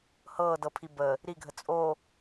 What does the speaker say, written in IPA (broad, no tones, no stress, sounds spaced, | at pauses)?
h ɤː d ɤ pʰ i b ə | ɾ i ɡʱ ə t͡sʼ o